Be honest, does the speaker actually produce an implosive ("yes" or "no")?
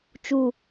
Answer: no